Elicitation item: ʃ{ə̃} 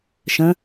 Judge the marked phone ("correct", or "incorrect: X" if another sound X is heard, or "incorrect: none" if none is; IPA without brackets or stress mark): correct